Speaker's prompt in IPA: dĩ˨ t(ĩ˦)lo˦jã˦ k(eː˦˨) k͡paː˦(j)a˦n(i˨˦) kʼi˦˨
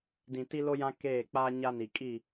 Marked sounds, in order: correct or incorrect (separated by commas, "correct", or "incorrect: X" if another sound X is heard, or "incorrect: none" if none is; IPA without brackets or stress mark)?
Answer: incorrect: i˦, correct, incorrect: ɲ, incorrect: i˨